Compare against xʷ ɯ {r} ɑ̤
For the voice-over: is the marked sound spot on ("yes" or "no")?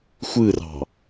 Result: yes